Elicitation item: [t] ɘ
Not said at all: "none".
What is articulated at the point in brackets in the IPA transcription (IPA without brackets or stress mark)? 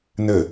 n